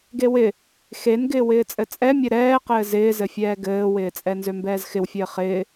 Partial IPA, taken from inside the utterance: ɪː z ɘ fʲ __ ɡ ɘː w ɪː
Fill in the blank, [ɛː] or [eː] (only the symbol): ɛː